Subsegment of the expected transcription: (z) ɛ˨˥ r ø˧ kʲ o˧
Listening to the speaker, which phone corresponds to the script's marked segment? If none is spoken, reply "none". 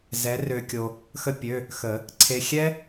z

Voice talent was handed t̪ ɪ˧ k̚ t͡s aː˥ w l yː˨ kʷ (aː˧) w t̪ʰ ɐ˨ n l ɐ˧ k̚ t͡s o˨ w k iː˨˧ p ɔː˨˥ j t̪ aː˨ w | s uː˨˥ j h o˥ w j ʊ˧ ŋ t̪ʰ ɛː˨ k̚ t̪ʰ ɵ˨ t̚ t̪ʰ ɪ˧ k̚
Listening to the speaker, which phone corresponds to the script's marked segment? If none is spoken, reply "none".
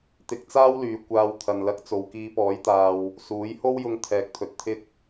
aː˧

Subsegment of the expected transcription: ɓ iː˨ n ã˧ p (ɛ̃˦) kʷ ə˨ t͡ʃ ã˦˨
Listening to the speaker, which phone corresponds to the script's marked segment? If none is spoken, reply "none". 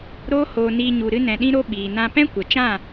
ɛ̃˦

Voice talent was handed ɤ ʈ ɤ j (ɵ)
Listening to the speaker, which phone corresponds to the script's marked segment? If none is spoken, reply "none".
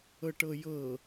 ɤ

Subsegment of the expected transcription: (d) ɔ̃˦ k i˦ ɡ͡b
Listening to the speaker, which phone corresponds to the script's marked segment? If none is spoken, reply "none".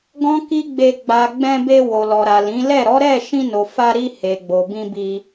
ɡ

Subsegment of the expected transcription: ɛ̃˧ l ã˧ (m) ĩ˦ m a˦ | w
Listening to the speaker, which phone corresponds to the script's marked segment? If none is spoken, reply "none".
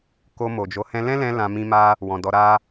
m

